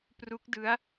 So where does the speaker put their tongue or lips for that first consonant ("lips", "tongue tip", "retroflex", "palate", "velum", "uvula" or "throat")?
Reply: lips